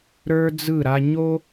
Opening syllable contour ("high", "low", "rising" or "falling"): high